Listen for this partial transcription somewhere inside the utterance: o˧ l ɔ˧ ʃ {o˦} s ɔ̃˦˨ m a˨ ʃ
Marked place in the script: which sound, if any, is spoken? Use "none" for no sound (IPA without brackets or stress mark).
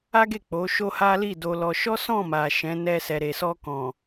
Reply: ɔ˦